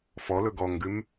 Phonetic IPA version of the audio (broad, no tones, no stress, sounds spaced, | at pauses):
f ɔ l ɵ ɡ ɔ ŋ ɡ ʉ m